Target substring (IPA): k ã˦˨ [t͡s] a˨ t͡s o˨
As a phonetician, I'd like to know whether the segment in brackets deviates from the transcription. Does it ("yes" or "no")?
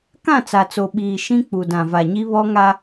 no